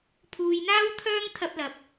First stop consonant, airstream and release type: aspirated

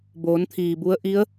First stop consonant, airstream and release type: plain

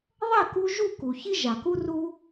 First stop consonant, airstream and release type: plain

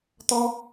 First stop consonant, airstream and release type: plain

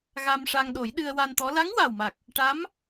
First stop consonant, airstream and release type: implosive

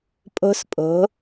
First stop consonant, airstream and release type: ejective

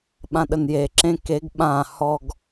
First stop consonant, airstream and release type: implosive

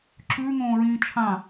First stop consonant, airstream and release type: click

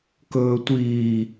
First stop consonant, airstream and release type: plain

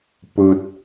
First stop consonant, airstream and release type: plain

